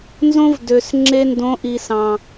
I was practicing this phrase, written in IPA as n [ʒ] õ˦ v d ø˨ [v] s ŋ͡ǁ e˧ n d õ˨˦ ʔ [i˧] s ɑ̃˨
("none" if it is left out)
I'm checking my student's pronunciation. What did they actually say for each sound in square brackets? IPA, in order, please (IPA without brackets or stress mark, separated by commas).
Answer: z, none, i˨